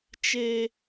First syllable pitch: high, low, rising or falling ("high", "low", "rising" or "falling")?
high